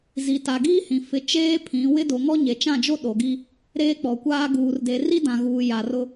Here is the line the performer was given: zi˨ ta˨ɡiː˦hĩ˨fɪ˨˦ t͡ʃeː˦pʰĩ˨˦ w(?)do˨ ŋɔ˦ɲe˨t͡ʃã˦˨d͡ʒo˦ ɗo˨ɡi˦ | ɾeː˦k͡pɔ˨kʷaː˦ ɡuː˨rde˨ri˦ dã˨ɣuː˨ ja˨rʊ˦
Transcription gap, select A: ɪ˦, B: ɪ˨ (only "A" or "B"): A